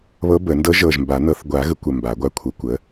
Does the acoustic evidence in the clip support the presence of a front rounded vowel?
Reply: no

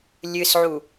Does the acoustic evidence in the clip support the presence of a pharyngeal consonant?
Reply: yes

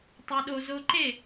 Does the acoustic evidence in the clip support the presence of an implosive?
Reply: yes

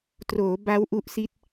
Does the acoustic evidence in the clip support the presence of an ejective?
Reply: no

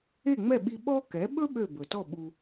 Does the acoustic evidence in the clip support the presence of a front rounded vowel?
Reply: yes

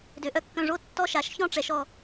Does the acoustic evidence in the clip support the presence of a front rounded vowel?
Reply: yes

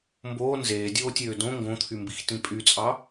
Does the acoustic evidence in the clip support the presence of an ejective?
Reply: yes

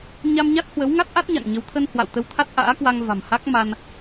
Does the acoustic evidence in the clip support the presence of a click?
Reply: no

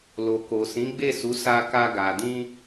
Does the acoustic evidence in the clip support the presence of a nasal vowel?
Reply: yes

